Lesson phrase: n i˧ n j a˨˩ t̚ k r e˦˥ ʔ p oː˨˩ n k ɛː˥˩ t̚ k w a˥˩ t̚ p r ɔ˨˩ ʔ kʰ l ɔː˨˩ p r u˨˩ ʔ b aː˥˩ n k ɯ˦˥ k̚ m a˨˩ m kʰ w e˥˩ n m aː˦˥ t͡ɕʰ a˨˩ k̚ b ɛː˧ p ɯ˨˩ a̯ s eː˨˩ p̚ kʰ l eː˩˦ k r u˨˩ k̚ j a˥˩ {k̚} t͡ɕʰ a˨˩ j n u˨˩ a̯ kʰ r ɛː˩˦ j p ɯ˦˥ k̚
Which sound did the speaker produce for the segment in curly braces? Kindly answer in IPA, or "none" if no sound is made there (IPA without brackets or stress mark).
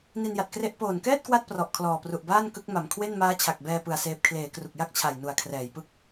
k̚